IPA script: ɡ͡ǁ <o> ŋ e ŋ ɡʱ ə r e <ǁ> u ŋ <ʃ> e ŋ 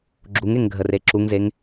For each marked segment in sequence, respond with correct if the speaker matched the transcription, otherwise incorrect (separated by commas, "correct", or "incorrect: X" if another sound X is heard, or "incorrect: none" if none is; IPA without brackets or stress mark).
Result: incorrect: u, correct, incorrect: z